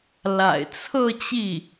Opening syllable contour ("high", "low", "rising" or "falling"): low